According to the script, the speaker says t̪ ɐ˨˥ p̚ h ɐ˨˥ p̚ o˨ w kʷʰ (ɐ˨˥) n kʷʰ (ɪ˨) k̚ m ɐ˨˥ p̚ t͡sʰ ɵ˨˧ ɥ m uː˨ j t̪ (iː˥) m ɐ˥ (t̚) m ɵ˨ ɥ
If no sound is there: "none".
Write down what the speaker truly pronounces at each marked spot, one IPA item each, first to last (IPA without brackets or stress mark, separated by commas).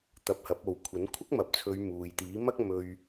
ɐ˨˥, ɪ˥, iː˨˥, k̚